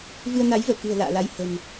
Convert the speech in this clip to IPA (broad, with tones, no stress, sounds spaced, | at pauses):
v ɨ˧ ə̯ n a˨˦ j v əː˧˩ k ɨ̤˨˩ ə̯ l a̰ː˧˨ l a˧ j h ə̤˨˩ m